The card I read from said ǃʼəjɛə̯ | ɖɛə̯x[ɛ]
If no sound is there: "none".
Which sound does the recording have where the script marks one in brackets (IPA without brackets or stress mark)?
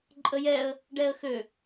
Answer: ø